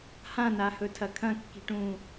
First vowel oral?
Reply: no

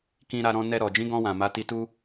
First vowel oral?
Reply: no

